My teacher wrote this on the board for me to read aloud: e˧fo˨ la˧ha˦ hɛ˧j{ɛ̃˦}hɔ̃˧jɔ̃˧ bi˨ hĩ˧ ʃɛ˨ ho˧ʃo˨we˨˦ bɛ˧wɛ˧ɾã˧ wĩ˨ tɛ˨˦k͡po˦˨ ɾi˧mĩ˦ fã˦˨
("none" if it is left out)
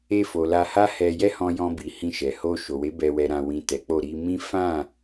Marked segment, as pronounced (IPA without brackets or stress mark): ɛ˦